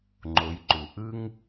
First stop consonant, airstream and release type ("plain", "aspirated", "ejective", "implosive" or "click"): click